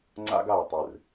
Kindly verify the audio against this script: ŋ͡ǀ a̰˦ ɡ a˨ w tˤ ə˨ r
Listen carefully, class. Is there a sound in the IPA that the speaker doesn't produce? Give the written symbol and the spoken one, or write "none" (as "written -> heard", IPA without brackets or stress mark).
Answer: ə˨ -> ɨ˨